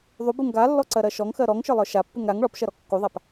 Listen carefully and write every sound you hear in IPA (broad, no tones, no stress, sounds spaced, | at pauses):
ðˤ u b u ŋ ɡ a lː ɔ ǀ ɜ ɾ ɜ ʃ ɔ ŋ x ɜ ɾ ɔ ŋ ʃ ə˞ lˠ ə˞ ʃ a pː u ŋ ɾ a ŋ ɭ ɔ p ʃ ɜ ɾ ɔ kː u ðˤ a p